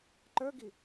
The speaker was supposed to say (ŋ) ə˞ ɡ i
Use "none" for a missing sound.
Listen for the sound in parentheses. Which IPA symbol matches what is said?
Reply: ǃ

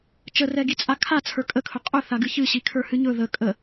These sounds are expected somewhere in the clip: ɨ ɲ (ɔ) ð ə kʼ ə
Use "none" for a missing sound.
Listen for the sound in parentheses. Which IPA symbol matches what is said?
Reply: ɵ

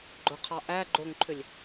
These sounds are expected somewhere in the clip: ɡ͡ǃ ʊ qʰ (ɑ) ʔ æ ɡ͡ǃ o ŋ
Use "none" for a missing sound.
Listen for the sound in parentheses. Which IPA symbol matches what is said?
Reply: ɑ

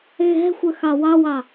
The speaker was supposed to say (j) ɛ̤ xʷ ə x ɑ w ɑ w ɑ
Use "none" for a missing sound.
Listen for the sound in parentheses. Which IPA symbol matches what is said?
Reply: ɣ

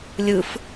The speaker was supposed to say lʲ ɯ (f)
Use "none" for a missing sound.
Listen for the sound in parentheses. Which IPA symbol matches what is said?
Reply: f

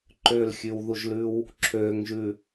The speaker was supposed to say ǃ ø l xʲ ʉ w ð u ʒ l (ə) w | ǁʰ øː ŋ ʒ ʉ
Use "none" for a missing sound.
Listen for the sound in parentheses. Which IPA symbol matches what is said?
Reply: ʉ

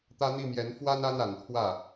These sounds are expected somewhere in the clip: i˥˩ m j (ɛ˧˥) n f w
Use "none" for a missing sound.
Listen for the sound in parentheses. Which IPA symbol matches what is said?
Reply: ɛ˧˥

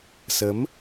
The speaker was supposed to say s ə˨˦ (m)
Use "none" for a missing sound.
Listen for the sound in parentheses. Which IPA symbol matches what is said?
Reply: m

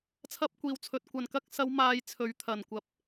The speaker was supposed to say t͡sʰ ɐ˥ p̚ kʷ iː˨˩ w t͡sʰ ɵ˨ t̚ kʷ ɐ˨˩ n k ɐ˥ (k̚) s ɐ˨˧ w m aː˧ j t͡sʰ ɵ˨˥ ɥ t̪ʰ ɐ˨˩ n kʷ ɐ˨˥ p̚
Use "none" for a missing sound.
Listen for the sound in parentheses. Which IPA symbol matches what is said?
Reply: k̚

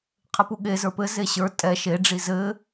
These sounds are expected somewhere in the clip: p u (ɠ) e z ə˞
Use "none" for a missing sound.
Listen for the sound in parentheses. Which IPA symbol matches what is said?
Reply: ɠ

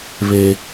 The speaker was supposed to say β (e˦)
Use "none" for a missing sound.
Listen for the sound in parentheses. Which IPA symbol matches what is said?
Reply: e˦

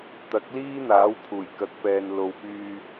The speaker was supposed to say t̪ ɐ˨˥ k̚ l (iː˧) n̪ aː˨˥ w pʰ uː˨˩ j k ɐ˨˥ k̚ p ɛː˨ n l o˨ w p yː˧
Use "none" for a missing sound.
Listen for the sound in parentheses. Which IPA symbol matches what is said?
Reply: iː˥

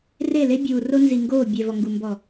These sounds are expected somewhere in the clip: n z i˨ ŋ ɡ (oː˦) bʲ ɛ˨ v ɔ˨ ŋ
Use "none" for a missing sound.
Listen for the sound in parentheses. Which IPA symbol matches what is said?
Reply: oː˦˨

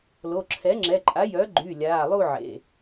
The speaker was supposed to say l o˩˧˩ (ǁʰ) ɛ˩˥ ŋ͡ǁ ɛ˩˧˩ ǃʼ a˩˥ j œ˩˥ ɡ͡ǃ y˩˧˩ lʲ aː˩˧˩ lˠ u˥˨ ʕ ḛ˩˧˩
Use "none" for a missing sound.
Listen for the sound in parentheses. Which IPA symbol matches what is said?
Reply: ǁʰ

